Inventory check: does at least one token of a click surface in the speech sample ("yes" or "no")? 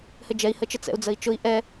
no